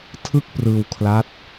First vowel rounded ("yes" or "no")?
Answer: no